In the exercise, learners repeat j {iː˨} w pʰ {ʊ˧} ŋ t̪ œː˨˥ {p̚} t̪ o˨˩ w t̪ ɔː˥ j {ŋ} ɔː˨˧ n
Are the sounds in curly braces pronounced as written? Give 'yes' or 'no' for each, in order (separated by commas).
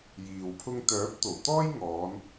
yes, yes, yes, yes